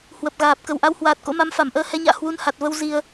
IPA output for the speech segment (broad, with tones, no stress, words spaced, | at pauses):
hwə˨˩p̚ɣaː˨˩p̚ kə˧˩wʔa˧whwaː˨˩t̚ ko̰˧˥ma˨˦m fa˧˩mʔəː˧hɛ˨˦ɲa̰ː˧˨ hwu˧nha˨˩t̚və˧w zi˧ə̯